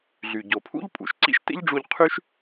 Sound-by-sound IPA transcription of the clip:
ɮy˩ ɟo˩pʰṵ˥ʎ pʼṵ˩ʃǀḭ˥ʃtḛ˥ʎɖ͡ʐu˧ʎ qʰy˥ʃ

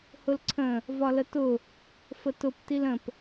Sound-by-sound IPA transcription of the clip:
hʊlǀʰə̃ | vɒlətʊ | fətʊp tilə̃p

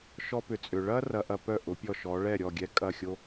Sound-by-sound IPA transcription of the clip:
ʃɔ˧pʏ˩ t͡sʼʏ˩ɭɐ˥ rɐ˧ʔɐ˧pœ˥˩ʔʊ˩˥ pʲɔ˥˩ʃɔ˩˥ ɭɛ˥˩ ɾʲɔ˥˩ɡʲɛ˥˩ kʼɐ˥˩xʲo˥

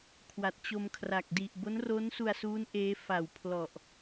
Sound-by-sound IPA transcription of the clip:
kʰwa˨˩t̚t͡ɕo˧mkʰra˨˩k̚ di˨˩ʔ bo˦˥nro˦˥nsu˧a̯suː˦˥n ʔeː˦˥fa˨˩wpʰlɔ˨˩ʔ

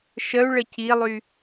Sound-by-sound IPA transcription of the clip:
ʃəu̯ɭə cilˠy

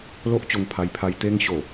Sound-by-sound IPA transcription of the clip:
lo˦ʔt͡ɕo˧ŋ pʰa˧jpʰa˧j t̪e˧ŋɕo˨˩

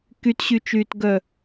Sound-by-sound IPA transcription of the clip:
kytɕyt͡ʃyːtɡœ

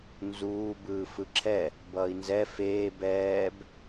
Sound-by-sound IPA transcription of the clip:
nzuː bɯːfɯǁʰɛ | bʌːi̯nzɛ feː bɛːb

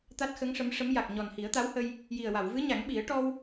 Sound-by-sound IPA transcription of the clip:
t̪a˦˥t̚xə˧˥ŋʂə˧˥mʂə˧˥m ja˨˩k̚ ɲɔ˨˩nhi˨˩˦ə̯t̪a˧˥whə˧j | ji˨˩ə̯ wa˨˩˨wvɨ˧˥ɲa˨˩˦ŋɓi˨˩˦ə̯ ʈɔ˧w

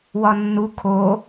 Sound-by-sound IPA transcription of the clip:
wɒnːu kʰo

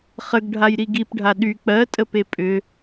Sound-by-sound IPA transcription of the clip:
χəɡɖʱajɾi ɡipɖʱa ɗy k͡pɜtʼəpe pʼʏ

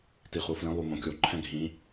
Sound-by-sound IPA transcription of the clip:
tiχuflĩ lˠumõkʲo ǃʰɛ̃ɡʱĩ

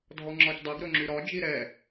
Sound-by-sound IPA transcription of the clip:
dʱɔŋ͡ǁɒcdˤɛɡ ɾɵŋ͡ǁyɾɒd͡ʒi ɾɛ

